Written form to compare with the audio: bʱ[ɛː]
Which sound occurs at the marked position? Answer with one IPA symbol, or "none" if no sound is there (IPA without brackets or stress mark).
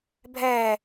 ɛː